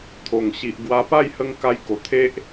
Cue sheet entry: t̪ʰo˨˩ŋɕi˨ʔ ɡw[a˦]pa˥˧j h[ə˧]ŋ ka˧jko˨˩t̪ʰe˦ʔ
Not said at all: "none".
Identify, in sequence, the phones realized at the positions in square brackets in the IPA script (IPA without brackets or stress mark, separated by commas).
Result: a˧, ə˧